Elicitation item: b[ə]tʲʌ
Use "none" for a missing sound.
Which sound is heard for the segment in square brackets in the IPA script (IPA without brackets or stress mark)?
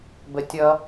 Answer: ə